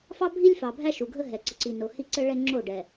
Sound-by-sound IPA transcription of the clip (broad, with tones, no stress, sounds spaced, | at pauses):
f ɑ˦ bʱ i˦ lʲ f ɑ˨ bʱ æ˦ ʃ u˨ ɡʱ ə˦ ɦ ɛ˨ ǀ ə˨ ǀ i˨ n o˨ h i˦ ǀ ə˦ ɭ ɛ˦ ŋ͡ǁ o˦˨ ɖ ɛ˨